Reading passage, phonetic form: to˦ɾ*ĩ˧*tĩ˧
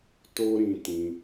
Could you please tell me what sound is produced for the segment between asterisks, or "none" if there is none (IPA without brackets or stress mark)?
ĩ˧